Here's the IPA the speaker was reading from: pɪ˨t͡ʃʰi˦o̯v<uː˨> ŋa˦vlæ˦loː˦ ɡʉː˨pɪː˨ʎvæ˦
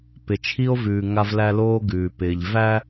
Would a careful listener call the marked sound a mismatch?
yes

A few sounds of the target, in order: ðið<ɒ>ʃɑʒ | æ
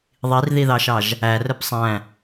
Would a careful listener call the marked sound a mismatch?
yes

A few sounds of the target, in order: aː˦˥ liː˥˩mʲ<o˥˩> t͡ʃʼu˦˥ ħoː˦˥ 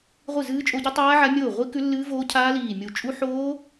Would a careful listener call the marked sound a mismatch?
yes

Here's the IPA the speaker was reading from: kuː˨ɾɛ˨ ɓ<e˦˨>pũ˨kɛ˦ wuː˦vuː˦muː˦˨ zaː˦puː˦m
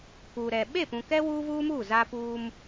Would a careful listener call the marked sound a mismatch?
no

